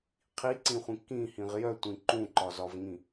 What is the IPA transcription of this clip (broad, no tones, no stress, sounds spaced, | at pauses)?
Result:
qʰ i ǀ ĩ χʷ ĩ k ĩ h ĩ ʁ j œ tʷ ĩ ǃ ũ ǃ ɒ z ɒ v ŋ ĩ